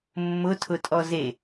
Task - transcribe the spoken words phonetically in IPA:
mːʊtʰʊtʼɔ ze

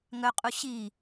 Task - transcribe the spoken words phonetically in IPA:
ŋœqʼu ɕi

